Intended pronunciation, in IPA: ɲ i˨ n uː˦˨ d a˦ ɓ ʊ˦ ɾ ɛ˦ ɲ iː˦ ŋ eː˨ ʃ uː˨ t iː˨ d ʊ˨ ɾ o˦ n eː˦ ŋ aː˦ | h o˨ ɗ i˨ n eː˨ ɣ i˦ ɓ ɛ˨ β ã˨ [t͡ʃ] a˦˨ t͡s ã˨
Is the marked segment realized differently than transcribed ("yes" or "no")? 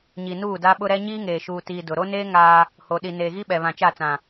no